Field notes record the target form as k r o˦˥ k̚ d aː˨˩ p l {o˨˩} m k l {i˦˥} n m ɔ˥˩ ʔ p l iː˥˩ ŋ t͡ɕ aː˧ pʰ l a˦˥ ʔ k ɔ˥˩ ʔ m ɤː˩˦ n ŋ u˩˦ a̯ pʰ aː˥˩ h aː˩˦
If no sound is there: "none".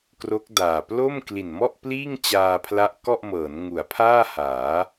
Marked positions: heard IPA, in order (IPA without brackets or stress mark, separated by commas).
o˥˩, i˨˩